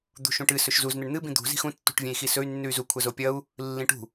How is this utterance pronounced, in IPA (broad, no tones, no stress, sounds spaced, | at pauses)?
d̪ ṳ ʃ ũ ʈ ɨ s ɵ ʃ z u z n̪ e ɳ n̪ ɨ b ĩ d̪ ṳ z i̤ x ũ tː ṳ ʈ vʲ ẽ i̯ x i s ɵ y̯ nː ʉ y̯ z u kʷʰ ɐ z o pʲ ɐ u̯ | lː ĩ ʈ ṳ